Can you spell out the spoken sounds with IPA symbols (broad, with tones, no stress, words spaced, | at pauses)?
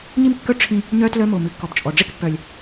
ɲi˦mkːœ˦ ʈ͡ʂʰĩ˧ | ɲœ˦ tlœ˧mo˨ mɨ˨kːɔ˨b t͡ʃʼɔ˨ ɖ͡ʐe˦kpːœ˨lʲ